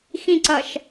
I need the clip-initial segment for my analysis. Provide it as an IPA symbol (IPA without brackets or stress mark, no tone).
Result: x